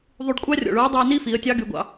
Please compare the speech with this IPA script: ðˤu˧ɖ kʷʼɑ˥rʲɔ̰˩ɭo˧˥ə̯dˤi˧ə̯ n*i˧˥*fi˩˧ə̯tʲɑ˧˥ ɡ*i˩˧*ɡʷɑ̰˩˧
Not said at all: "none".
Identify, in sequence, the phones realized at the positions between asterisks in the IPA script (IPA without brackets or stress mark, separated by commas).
i˥, y˩˧